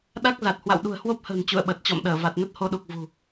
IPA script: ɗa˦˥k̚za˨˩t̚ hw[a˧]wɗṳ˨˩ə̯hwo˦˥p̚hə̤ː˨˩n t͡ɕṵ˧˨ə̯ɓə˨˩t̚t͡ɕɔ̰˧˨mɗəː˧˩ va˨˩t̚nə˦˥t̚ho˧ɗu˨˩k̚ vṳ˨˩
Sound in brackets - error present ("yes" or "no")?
yes